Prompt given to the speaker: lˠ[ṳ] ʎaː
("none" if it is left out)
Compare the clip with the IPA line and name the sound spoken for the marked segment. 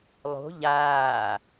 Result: o̤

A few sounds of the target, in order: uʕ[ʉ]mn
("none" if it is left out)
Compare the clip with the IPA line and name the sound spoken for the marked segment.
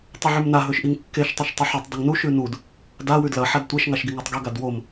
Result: ʉ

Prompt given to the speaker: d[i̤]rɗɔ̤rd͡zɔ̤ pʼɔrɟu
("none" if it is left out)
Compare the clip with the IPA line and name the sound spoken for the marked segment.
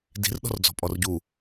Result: i̤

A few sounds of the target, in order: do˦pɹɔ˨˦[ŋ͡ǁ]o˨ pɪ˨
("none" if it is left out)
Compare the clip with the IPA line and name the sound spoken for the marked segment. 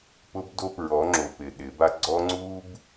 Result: ŋ͡ǁ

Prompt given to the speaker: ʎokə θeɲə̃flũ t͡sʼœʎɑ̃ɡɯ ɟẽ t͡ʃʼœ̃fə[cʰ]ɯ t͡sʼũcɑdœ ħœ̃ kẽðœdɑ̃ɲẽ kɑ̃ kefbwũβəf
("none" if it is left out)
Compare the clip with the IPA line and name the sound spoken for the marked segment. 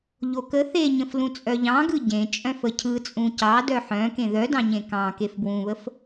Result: cʰ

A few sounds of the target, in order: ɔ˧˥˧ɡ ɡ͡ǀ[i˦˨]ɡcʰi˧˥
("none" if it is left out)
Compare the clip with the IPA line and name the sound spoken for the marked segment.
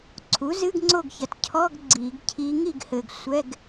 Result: i˨˩˦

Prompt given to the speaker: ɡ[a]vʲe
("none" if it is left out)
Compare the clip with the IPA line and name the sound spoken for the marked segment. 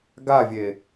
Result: a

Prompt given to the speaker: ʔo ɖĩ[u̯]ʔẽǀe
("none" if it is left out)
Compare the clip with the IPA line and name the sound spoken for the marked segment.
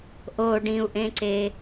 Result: u̯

